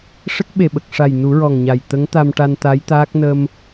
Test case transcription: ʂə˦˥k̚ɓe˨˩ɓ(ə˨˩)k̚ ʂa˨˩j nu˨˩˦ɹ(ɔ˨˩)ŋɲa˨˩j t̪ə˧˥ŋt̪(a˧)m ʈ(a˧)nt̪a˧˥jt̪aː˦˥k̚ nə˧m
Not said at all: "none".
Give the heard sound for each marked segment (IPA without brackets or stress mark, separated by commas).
ə˨˩, ɔ˨˩, a˧, a˧